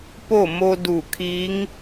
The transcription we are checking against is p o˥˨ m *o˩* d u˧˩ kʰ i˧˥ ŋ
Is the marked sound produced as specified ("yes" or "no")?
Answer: no